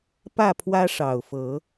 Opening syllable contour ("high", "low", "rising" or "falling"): falling